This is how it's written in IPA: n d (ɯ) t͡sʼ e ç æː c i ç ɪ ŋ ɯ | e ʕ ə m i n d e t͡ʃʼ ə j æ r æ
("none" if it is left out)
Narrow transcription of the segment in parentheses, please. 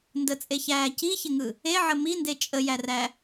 ə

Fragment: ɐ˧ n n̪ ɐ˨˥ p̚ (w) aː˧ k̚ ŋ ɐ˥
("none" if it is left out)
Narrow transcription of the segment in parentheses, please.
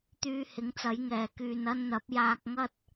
j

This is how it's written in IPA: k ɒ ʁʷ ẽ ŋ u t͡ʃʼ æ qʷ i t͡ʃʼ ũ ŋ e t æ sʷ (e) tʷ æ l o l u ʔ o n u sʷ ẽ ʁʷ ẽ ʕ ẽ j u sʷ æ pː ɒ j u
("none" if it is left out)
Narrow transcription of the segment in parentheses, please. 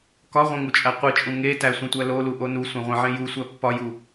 ẽ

